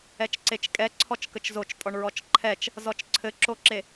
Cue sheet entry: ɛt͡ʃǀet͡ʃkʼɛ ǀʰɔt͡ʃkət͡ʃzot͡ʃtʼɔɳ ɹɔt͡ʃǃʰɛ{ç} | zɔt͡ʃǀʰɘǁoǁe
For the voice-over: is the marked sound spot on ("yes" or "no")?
no